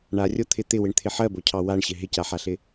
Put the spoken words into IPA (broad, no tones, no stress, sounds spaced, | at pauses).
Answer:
ɳ a rʲ o t̪ʰ ɪ t̪ ɪ w ɪ ɳ t̪ʰ ɪ ħ ɜ b o cʰ ɑ w a ɳ ɕ ɪ ɦ ɪ c a ħ a ɬ ɪ